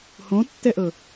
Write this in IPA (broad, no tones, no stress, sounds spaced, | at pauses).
h õ tː ɛ ʔ ɤ